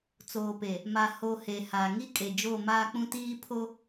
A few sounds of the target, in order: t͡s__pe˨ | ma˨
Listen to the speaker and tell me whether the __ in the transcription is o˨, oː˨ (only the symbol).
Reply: oː˨